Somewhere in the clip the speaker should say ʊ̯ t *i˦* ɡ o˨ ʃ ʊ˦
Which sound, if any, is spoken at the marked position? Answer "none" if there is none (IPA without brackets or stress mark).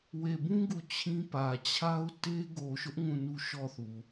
e˦